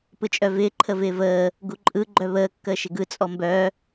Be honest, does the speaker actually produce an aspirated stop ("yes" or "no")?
yes